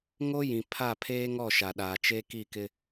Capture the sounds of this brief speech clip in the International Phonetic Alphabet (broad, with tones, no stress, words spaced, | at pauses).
ŋo˦jĩ˨pʰa˦˨ pʰeː˦ŋɔ˦˨ ʃa˨ɗaː˨ t͡ʃe˦ki˦˨kɪ˦